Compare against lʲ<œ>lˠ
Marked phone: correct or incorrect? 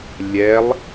incorrect